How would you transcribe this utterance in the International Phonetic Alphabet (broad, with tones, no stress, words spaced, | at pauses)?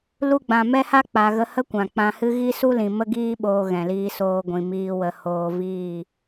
lu˧ɡ͡bã˨mɛ˦ha˦ k͡pa˨ɣə˧hə˦ kʷã˨k͡pã˧hɨ˦ ɣi˦su˦lĩ˨ mə˦ɡiː˦ɓoː˧ ɣɛ̃˨liː˧soː˧ ɡʷĩ˨miː˧ wə˧ hoː˧viː˦˨